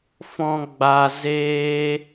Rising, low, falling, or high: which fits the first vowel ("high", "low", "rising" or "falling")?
low